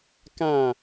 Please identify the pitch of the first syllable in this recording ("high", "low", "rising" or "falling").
falling